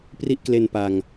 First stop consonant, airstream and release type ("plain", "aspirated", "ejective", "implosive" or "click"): plain